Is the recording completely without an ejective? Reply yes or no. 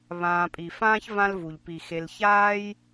no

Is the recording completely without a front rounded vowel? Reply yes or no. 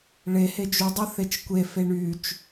no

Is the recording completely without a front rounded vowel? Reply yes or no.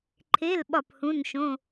yes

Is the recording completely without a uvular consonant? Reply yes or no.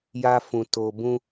yes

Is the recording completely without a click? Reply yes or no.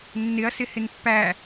yes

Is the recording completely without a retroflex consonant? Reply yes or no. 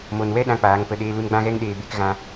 yes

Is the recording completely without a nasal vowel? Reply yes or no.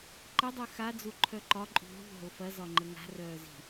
yes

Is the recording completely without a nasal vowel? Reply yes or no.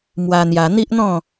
no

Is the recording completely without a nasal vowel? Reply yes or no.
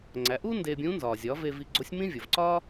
no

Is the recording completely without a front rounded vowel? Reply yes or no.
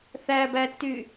no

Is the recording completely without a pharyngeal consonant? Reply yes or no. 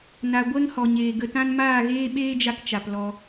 yes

